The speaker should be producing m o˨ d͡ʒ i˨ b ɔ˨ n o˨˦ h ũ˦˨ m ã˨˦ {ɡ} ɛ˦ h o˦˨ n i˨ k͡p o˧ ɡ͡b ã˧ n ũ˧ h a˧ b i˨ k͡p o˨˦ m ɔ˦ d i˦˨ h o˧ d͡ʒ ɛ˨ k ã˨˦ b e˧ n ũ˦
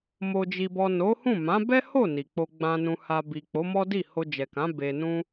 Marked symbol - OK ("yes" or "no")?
no